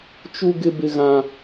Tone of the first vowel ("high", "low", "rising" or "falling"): high